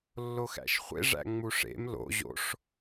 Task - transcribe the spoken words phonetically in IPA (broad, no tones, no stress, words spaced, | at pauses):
lːoxæ̰ʃχʷḛ ʐæ̰ŋ͡muʂḛm lo̰ ʑo̰ʂ